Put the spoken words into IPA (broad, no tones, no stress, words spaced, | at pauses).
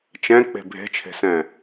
t͡ʃɛ̃k͡pe̤ bʱe̤t͡ʃʰe̤sɛ̃